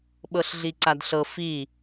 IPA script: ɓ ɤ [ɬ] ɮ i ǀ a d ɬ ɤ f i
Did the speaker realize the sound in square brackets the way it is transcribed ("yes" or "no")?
yes